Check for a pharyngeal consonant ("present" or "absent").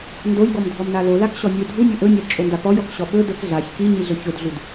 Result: absent